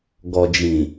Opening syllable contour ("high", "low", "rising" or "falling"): low